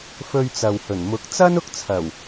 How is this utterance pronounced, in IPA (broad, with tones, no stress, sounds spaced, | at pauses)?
f ɵ˧ ɥ t͡s ɐ˨ w h ɵ˨˩ n m ʊ˨˥ k̚ t͡s ɐ˥ n ʊ˥ k̚ t͡sʰ ɐ˨˩ w